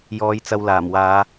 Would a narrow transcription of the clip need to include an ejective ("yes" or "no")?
no